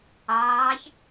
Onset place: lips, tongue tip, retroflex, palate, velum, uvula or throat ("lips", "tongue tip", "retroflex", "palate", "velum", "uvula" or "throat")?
palate